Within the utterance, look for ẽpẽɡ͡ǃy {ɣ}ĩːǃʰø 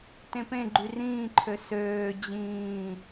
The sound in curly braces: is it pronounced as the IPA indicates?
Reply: no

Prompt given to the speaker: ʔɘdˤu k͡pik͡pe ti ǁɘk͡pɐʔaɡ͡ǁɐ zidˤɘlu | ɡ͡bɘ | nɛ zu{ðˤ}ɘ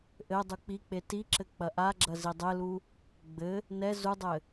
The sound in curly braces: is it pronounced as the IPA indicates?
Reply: no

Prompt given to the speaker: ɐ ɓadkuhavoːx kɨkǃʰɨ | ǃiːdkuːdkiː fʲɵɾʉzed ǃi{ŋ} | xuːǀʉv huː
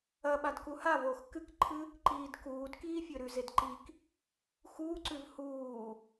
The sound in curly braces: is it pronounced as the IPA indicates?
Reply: no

